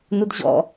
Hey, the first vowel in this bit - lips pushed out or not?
yes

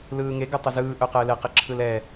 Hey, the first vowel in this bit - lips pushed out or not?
no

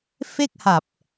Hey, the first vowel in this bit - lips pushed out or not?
no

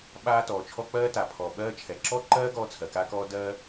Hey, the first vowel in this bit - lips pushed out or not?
no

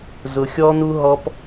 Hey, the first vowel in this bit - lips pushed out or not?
yes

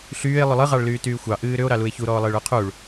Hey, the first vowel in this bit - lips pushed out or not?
yes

